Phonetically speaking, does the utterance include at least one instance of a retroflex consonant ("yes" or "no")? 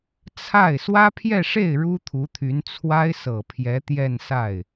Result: yes